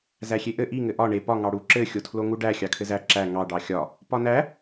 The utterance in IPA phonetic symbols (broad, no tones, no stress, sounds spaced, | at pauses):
z æ xʲ e ʔ ɘ ʔ i ŋ ɘ ʔ ɒ ɳ e p ɒ ŋ ɑ ɽ u ǁ ɘ xʲ o tʰ l o ŋ u ɖ æ xʲ ɑ kʰ ɘ z æ ǁ æ ŋ ɑ ɖ ɑ xʲ ɒ | p ɒ n æ